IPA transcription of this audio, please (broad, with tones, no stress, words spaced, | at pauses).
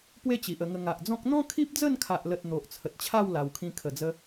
pwe˥˧t͡ɕi˨ʔə˧ŋə˧ ŋa˨ʔd͡zɔ̃˦k̚ n̪ɔ̃˦ kʰi˦p̚d͡zə˥˧nkʰa˨ʔlə˨t̚ n̪o˨ʔt͡sʰə˨t̚t͡ɕʰa˥˧w la˨˩wkʰĩ˧ kʰə˨˩d͡zə˧